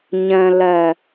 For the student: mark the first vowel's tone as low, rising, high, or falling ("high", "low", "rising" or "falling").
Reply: low